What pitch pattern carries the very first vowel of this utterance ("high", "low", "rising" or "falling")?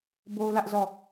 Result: high